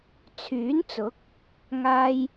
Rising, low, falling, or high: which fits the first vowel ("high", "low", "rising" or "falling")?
rising